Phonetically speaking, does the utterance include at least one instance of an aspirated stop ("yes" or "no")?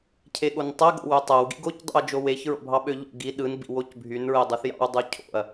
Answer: yes